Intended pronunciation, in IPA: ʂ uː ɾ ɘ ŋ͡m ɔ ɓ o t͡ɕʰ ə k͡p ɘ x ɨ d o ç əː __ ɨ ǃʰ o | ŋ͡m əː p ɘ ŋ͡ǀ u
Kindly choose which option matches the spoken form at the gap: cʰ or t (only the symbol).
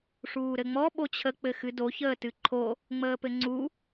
t